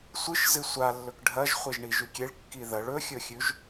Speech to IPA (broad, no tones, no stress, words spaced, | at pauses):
sʷɨʃzɨ sʷa lːɵkɖʱɐʒ χʷeʒɳiʒʉkʲeɭ kːiðɐɭ ɵxʲɵxʲʉʒ